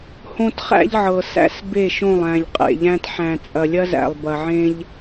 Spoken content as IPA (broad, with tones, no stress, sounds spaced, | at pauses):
h õ˦ t χ æ̰˦ ʎ ʕ ɤ˨ s æ̰˦ s b e˦˨ ʃ õ˦˨ lˠ æ̃˨ ʎ qʼ ḛ˨ ʎ æ̃˦ t ħ æ̃˨ t͡sʼ ɐ˨ lʲ ɐ˦ z æ̰˨ lˠ b ɐ˨ ʕ ẽ˦ ʎ